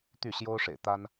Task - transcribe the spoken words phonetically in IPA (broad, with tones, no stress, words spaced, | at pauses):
t̪y˥˩ɕjo˥ʊ̯ʂḛ˨˩ɪ̯t̪a˥n